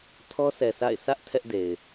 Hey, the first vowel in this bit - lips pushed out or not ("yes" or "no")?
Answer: yes